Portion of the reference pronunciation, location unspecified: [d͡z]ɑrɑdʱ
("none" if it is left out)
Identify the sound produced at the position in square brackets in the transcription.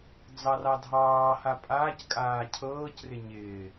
d͡z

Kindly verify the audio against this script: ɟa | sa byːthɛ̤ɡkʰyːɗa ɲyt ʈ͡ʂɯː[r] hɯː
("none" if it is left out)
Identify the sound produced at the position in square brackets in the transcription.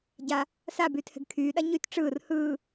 r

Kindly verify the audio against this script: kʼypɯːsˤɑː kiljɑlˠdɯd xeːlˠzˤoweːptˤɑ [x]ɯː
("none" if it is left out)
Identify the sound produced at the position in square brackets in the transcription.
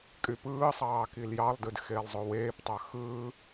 x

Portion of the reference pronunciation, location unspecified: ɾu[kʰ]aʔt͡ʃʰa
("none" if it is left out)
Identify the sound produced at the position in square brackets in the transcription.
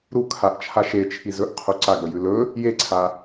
kʰ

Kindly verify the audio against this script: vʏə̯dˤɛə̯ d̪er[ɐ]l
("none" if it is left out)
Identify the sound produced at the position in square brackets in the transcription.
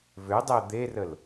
ə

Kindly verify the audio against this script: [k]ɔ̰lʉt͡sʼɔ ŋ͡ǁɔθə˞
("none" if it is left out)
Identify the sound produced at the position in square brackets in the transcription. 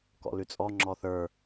k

